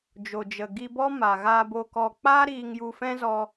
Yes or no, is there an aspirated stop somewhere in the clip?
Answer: no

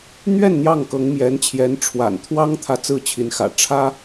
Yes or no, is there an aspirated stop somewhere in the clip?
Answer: yes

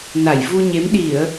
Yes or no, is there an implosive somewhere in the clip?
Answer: yes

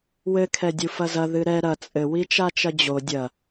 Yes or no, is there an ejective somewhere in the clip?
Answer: yes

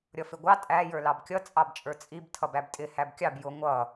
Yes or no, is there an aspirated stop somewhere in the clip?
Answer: yes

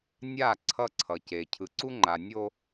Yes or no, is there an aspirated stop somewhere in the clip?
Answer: yes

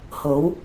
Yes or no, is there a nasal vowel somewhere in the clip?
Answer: no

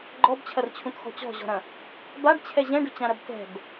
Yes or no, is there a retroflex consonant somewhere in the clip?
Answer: yes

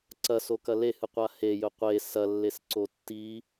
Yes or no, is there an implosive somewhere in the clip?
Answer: no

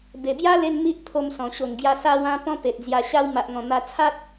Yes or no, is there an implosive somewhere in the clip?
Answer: no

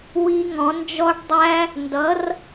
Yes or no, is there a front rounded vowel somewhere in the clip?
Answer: no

